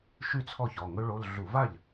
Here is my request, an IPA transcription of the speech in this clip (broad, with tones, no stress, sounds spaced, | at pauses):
ʃ y˥˩ t͡sʰ ɔ˥˩ ç ɔ˩˧˩ ŋ ɵ˦˥ ɭ o˧˥˧ l ɮ u˧˩˧ v a˥˩ ʎ